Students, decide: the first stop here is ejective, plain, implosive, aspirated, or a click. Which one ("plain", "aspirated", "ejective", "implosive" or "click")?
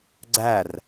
click